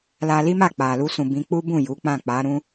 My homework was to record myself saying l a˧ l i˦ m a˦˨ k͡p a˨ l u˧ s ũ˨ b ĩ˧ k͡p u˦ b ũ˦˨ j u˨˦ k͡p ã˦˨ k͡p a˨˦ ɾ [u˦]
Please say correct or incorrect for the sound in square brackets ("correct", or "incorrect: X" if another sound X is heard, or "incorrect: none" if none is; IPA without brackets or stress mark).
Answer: incorrect: ũ˦